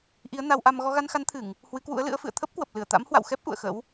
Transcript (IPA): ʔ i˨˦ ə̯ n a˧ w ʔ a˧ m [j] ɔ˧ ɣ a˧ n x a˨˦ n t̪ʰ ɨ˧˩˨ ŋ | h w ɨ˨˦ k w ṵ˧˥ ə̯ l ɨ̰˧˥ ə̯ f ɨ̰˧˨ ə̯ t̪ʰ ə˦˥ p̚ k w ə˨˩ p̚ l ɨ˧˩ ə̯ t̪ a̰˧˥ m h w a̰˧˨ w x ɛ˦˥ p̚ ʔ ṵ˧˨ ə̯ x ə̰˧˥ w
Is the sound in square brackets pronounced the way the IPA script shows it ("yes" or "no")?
no